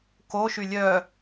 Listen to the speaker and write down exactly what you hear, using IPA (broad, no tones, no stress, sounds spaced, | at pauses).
k o ʃ y lʲ œ